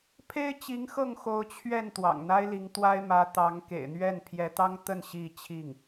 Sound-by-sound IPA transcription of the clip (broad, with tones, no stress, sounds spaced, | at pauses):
pʰ e˥ ɪ̯ t͡ɕ i˧˥ ŋ x ɤ˥˩ ŋ x o˧˥ ʊ̯ t͡ɕʰ ɥ ɛ˥˩ n t̪ w ɑ̰˨˩ ŋ n̪ a˥ ɪ̯ l i˧˥ ŋ t̪ w a˥ ɪ̯ m ä˧˥ t̪ ɑ˧˥ ŋ k ḛ˨˩ ɪ̯ n̪ ɥ ɛ˥˩ n pʰ j ɛ˧˥ t̪ ɑ˥ ŋ t̪ ə˥˧ n ɕ i˥˧ t͡ɕʰ i˥˩ ŋ